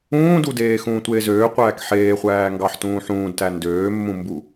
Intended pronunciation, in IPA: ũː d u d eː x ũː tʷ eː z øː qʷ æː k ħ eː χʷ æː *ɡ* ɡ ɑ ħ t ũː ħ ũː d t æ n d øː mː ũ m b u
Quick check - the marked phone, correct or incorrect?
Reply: incorrect